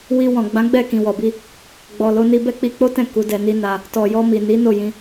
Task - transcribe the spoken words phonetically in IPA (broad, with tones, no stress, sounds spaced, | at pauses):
w i˧ w ɔ̃˨ ɡ͡b ã˨˦ ɡ͡b ɛ˦˨ k ĩ˨ w ɔ˨ b i˧ | ɡ͡b ɔ˨ l o˧ n i˧ b ɛ˦ k͡p i˧ k͡p o˦ t ɛ̃˦˨ k u˨˦ d ɛ˧ n i˦ n a˧ | t ɔ˨ j ɔ˧ m i˨ n i˨˦ n o˦˨ j ĩ˧